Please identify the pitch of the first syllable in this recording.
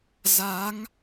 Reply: rising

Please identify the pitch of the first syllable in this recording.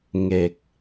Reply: low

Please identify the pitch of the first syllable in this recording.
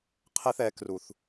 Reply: high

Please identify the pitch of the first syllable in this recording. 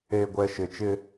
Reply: low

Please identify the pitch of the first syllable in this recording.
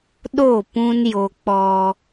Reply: falling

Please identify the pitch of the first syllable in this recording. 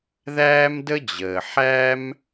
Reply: high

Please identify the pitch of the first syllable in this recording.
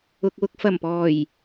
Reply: low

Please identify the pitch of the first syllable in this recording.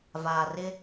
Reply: low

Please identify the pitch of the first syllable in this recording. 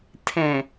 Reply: low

